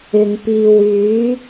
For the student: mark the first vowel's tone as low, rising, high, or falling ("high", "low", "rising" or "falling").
low